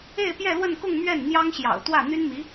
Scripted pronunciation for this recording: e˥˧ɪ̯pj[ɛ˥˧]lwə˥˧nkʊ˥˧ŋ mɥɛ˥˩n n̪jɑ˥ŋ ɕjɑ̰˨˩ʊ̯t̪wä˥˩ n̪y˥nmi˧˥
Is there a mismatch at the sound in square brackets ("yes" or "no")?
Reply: no